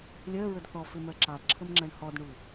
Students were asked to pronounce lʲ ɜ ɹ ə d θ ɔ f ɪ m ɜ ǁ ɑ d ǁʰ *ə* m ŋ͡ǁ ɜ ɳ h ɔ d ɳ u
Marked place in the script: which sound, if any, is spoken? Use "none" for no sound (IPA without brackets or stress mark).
ə